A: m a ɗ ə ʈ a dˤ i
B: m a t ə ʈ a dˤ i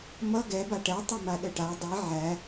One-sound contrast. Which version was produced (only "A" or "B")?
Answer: A